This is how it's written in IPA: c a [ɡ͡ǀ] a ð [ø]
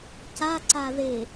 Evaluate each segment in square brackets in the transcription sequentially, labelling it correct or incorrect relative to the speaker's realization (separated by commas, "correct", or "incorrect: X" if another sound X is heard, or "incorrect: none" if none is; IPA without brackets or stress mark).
incorrect: ǀ, incorrect: e